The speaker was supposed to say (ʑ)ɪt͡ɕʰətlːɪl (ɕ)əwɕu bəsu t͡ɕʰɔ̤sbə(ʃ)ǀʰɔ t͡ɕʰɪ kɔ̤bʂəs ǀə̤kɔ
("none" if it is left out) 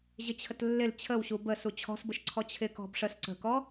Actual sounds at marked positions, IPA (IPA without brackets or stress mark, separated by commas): ʑ, t͡ɕʰ, ʃ